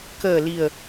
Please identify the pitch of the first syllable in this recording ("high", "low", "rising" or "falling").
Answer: low